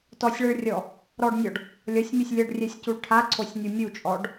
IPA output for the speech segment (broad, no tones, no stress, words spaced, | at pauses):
tɔsʲɭɛɭrʲɔ | ɾɔɖnʲɔɖ | lʲʌsʲmʲʌsʲ lʲʌɖrʲɛsʲcuɭ ʈʰaǀʰosʲnʲu mʲut͡ʃʼɔɖ